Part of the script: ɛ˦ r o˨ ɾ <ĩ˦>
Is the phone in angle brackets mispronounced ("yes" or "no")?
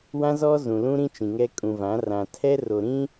no